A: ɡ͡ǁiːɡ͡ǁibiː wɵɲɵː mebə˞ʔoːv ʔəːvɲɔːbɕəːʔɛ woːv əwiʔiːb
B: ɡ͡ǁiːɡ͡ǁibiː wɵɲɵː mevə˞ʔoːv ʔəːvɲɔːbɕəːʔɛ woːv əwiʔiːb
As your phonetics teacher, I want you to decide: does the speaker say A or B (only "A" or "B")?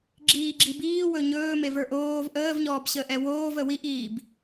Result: B